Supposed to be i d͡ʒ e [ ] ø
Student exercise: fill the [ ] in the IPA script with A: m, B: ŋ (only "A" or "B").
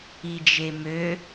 A